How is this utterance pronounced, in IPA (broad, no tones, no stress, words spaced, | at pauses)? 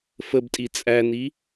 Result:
fəbtʼi t͡sʼæni